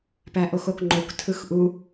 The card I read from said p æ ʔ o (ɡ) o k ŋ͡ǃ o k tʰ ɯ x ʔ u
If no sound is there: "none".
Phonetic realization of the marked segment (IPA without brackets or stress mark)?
x